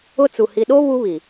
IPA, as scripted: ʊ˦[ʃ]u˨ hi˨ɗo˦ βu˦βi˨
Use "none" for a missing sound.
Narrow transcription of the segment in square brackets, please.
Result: t͡s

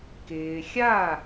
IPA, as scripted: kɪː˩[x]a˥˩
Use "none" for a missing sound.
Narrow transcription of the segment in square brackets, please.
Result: xʲ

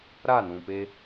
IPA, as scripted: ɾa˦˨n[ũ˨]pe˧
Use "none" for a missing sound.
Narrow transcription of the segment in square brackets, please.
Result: ũ˨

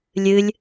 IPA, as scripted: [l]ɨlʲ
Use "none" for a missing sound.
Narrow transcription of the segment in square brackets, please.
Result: lʲ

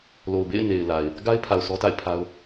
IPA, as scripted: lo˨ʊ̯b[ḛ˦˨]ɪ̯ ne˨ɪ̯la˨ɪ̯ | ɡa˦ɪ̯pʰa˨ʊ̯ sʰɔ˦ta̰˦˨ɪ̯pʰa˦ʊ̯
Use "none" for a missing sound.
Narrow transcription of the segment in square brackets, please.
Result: ḛ˦˨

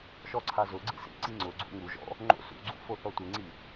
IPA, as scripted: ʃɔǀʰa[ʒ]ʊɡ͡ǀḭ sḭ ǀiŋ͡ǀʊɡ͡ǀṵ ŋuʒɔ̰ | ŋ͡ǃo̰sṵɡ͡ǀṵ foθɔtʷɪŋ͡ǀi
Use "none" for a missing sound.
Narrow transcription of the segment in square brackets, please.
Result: z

